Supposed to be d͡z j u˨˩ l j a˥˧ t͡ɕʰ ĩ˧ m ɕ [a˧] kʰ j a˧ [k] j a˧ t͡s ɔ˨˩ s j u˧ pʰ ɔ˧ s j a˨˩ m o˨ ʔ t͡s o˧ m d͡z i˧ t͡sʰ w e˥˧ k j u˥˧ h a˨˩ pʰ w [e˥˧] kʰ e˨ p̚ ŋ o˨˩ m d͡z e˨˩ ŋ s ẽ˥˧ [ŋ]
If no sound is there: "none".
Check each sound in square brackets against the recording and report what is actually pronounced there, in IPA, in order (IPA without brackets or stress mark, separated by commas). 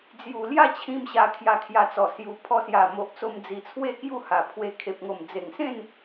a˧, kʰ, e˧, n